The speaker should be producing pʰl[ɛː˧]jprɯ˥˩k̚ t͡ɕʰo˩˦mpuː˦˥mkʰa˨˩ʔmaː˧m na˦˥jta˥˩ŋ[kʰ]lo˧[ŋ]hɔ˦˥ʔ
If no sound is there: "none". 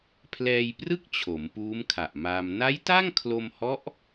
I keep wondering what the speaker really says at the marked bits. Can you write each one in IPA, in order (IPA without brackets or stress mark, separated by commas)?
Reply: ɛː˧, kʰ, m